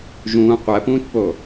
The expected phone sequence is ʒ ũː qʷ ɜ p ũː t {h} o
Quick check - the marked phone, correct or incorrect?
incorrect: p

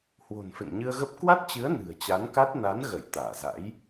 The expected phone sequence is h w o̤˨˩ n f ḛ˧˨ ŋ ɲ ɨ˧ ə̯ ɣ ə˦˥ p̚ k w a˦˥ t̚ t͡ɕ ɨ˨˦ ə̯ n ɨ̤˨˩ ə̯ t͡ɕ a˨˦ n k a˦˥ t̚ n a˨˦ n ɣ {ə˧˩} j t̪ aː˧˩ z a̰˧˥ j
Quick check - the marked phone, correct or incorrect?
correct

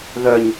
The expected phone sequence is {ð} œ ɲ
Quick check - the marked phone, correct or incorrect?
correct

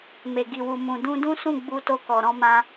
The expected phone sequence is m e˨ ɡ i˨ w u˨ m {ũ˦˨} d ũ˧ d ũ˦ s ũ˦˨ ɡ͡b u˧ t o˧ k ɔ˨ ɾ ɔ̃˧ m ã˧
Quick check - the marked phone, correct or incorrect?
incorrect: ũ˨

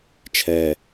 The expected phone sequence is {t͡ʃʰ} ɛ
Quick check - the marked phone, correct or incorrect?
correct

